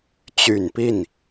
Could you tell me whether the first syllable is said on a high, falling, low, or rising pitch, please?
low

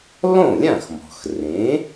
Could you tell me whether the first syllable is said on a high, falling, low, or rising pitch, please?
falling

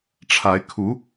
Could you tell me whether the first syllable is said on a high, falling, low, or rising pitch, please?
rising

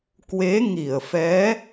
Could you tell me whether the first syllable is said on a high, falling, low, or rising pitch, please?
rising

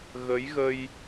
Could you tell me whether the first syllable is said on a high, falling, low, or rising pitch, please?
rising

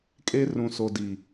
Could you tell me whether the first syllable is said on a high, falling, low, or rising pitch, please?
high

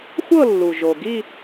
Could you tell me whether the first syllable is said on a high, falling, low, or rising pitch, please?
falling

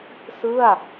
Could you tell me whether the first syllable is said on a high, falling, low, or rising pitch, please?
falling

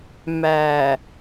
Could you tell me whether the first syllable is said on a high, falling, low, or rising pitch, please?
low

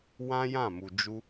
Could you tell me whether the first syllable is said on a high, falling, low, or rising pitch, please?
high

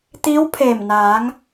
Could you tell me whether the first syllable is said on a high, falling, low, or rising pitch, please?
rising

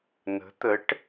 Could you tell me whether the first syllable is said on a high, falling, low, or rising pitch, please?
rising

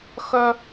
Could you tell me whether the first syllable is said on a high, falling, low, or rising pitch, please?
high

